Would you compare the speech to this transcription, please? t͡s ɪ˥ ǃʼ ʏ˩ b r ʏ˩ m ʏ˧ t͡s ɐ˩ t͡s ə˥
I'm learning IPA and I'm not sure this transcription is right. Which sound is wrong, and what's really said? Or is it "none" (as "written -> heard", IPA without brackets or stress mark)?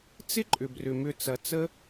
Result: none